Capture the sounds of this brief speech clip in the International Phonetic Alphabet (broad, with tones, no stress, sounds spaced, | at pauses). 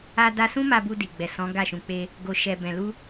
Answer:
a˦ d a˦ s ũ˦ m a˧ b u˧ d i˨ ɡ͡b ɛ˨ s ɔ̃˨˦ ɡ a˦˨ ʃ ũ˧ k͡p e˦ | ɡ o˧ ʃ ɛ˧ b ɛ̃˨ l u˧